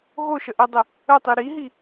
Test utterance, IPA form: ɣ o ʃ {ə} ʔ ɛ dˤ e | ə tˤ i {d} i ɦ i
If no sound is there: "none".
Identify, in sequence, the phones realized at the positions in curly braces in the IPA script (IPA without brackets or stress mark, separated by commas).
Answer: ə, ɾ